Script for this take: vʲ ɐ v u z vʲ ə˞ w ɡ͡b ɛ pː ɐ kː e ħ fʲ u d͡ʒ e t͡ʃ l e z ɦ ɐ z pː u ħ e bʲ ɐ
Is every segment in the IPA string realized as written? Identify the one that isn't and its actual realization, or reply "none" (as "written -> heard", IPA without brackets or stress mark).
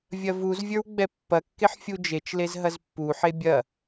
none